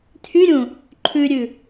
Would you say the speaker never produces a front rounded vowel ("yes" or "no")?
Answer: no